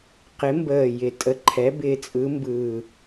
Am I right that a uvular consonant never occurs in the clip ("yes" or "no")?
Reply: no